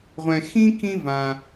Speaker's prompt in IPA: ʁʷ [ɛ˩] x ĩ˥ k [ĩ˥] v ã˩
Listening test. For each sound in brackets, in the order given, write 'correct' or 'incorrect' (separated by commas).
incorrect, correct